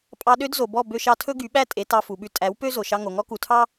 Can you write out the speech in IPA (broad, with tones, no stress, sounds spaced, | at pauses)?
pʼ ɑ˧ ɗ ø˦ d z o˨ b ɔ˦˨ b ø˧ ʃ ɑ˧ tʰ ɵ˦ ɡ y˨˦ ɓ æ˦ tʼ e˨˦ t ɑ˧ f u˨ ɓ ʉ˧ tʼ æ˨˦ w p ø˦ z o˨ ʃ ɑ˧ ŋ o˨ ŋ ɔ˦ k u˨ tʰ ɑ˦